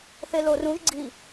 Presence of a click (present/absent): present